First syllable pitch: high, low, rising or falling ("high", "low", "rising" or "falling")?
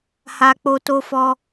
high